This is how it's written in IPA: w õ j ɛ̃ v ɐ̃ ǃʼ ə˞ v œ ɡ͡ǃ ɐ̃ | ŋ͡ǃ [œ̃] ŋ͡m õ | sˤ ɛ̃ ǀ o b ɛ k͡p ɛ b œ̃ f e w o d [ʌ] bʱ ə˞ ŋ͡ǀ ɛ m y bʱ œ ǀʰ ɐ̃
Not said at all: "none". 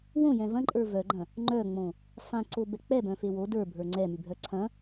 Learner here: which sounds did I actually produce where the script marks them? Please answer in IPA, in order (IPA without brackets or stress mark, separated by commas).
œ, ə˞